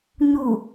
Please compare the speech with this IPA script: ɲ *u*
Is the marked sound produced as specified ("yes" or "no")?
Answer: yes